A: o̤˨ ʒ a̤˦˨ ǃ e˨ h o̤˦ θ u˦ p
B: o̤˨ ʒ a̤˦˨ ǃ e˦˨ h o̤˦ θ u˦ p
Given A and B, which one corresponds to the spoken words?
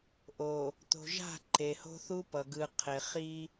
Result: A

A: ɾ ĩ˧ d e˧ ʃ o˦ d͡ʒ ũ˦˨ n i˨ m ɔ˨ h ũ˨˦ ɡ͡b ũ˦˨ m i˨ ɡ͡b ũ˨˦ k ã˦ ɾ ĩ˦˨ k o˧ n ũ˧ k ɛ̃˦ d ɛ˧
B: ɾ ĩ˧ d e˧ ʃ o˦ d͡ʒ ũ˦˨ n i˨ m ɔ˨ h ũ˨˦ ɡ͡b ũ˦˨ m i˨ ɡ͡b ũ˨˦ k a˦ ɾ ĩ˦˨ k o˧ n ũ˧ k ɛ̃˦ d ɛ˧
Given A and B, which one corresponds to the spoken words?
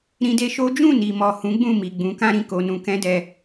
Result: A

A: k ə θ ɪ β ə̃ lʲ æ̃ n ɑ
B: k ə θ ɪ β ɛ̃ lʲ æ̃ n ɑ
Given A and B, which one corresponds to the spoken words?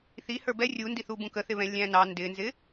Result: B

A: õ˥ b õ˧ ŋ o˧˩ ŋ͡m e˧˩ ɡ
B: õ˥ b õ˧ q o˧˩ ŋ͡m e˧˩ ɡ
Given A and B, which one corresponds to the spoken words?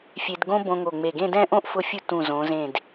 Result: A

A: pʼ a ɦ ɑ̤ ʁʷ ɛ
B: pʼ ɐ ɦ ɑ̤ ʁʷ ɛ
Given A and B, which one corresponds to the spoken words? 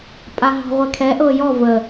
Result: A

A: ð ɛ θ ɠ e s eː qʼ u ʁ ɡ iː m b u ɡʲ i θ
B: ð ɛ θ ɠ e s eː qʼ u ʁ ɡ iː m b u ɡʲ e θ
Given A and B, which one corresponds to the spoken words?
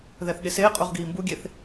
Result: B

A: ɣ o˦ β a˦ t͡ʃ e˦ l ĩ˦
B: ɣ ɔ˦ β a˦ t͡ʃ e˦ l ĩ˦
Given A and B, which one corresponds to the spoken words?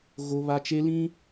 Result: A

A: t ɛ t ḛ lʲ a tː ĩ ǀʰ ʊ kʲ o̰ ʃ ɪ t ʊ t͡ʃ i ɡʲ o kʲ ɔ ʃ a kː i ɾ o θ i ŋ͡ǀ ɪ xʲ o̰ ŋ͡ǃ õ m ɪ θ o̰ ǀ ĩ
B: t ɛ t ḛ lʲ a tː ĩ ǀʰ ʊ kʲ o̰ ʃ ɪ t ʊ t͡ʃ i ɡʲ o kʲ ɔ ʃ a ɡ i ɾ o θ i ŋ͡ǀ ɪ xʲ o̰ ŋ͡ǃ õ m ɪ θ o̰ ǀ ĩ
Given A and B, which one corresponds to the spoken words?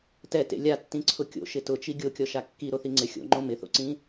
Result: A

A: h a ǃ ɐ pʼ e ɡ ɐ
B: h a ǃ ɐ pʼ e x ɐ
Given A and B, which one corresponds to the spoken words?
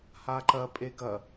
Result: A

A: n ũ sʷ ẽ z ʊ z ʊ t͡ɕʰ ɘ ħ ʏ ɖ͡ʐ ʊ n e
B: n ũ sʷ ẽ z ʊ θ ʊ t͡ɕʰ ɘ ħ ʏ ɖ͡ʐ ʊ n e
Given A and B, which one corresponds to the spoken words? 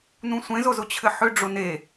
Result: A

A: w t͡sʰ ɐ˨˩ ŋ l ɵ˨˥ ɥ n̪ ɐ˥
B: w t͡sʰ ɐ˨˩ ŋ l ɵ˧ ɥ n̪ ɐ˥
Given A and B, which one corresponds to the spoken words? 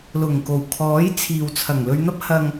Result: B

